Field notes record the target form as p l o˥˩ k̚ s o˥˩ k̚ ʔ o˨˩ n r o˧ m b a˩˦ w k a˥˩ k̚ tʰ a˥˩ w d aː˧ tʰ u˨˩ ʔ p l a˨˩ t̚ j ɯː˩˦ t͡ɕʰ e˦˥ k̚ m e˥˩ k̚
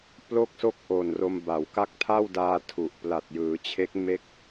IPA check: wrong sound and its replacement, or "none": none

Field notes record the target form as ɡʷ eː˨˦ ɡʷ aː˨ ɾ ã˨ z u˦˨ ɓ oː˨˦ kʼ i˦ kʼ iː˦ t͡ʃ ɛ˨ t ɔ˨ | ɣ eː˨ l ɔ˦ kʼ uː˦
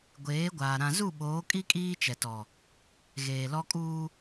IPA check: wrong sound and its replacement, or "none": none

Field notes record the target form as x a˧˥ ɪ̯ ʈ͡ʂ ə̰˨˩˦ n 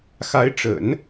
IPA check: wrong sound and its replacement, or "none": none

